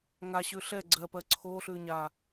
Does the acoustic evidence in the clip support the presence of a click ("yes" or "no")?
yes